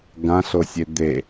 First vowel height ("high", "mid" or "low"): low